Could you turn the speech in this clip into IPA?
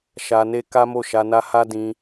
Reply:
ʃ a˧ n e˦ k a˦ m o˦˨ ʃ a˧ n a˦ h a˦ d ĩ˧

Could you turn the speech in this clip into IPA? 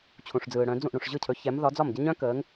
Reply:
t͡ɕʰ ũ˩ ʂ d͡z ɯː˩ ɽ œ̃˩˧ d͡z ũ˥˩ ʔ ɽ ũ˩ ʂ ʑ ɯ˥˩ cʰ ɵ˩˥ ç ɛ˩˥ m ð ɒ˩˥ d͡z ɒ˥˩ m ɟ ə˥ ɲ œ̃˥ k əː˩˥ ŋ

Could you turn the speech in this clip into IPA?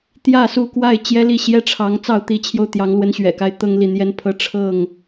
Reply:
t̪ j ä˥˨ s u˥˨ k w a˥˨ ɪ̯ t͡ɕ j ɛ˦ l i˥˨ ɕ j ɛ˥˨ ʈ͡ʂʰ ɑ˨˦ ŋ t͡s ɑ˥˨ ʊ̯ t̪ i˨˦ t͡ɕʰ j o˧ ʊ̯ t̪ j ɑ˨˦ ŋ l w ə˨˦ n ɕ ɥ ɛ̰˨˩ k a˦ ɪ̯ t̪ ɤ˦ ŋ l i˨ n̪ j ɛ˦ n pʰ ɤ˦ ʈ͡ʂʰ ɤ˥˨ ŋ

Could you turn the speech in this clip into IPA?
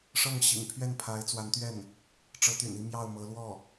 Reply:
ʂ ɤ˥˩ ŋ ɕ ḭ˨˩ ŋ pʰ ɥ ɛ˥˩ n pʰ a˧˥ ɪ̯ t͡s w a˧˥ n t̪ ɥ ɛ˥˩ n | ʈ͡ʂ ɤ˧˥ t̪ y̰˨˩ n i˥˧ m j ɑ˥˩ ʊ̯ m ɤ˧˥ l w ɔ˥˩

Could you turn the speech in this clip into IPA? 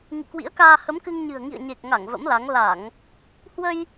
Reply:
ŋ ɨ̰˧˨ k w ḭ˧˥ ə̯ k aː˧ h ə˨˦ m k ɨ˧ ŋ ɲ ɨ̤˨˩ ə̯ ŋ ḭ˧˨ ə̯ ɲ e˨˩ k̚ ŋ a˧˩ ŋ v ə̰˧˥ m l a˨˦ ŋ l a˧˩˨ ŋ | h w ə˧ j

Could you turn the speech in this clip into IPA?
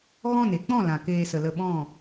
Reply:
ɣ ɔ̃˦˨ n e˨ k͡p ɔ̃˦˨ l ã˨ k eː˧ s ə˨ l ə˧ ɓ ɔ̃˦˨

